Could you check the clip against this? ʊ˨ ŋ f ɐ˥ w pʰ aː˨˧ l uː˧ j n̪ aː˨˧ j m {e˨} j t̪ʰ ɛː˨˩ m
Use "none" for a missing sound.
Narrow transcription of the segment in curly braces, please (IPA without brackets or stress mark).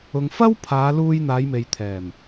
e˨